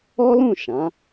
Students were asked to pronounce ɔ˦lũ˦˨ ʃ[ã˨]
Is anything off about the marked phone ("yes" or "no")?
yes